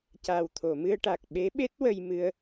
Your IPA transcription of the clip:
c a˨˩ w t̪ʰ o˨˩˨ m ɨ˧ ə̯ ʈ a˨˩ k̚ ɓ e˧˥ ɓ e˦˥ t̚ w ə˧ j m ɨ˧ ə̯

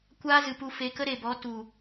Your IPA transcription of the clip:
kʷ aː˦ z ɨ˨ p u˧ f e˨˦ k ə˦ ɾ e˨ b ɔ˨˦ t u˨

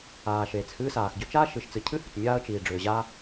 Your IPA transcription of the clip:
aː˩ ʃ eː˩ t͡s h ɨː˥ s aː˩ x ɟ ʏ˥ t͡ʃ aː˥ ʃ ɨ˩ ʃ t͡s ɨ˩ cʰ ɨ˥ h ʏ˩ t͡s mʲ aː˥ ə̯ t͡ʃ iː˩ ɖ͡ʐ ʏː˩ ʑ aː˥

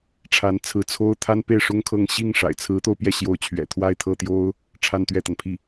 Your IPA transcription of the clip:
ʈ͡ʂʰ a˧˥ n t͡sʰ ɹ̩˧˥ t͡sʰ o˥ ʊ̯ t̪ʰ a˥ n p e˥˩ ɪ̯ ʂ ʊ˥ ŋ kʰ ɤ˥˧ ŋ ɕ i˥˩ ŋ ʂ a̰˨˩ ɪ̯ t͡sʰ ɹ̩˧˥ t̪ o˧ ʊ̯ p j ɛ˥˩ ɕ j o˧˥ ʊ̯ t͡ɕʰ ɥ ɛ̰˨˩ t̪ʰ w a˥˧ ɪ̯ t̪ʰ ɤ˥˩ t̪ j o˥ ʊ̯ | ʈ͡ʂʰ a˥˧ n t̪ ɥ ɛ˥˩ t̪ a˩ n pʰ i˥˩

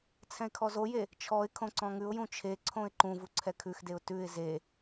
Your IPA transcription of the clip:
t͡sʰ ɛ̃ ɪ̯ kʰ ɔ z o j e | t͡ʃʰ ɔ ɪ̯ kʰ õ ǀ ɔ̃ ŋ ʉ ʊ̯ j ũ t͡ʃʰ e ǀʰ õ ɪ̯ ǃ ũ v u ǀʰ ɛ kʰ ʉ x d e ʊ̯ t ʉ ɪ̯ z e

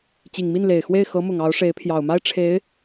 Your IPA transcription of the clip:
t͡ɕ i˨˩ ŋ m i˥˩ n l e˨˩ ɪ̯ x w e˥˩ ɪ̯ x ɤ˧˥ m ʊ˨˩ ŋ ɑ˧˥ ʊ̯ ʂ e˧˥ ɪ̯ pʰ j ɑ˨˩ ʊ̯ m a˥ ɪ̯ ʈ͡ʂʰ e˧˥ ɪ̯

